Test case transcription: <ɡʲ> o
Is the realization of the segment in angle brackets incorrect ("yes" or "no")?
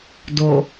yes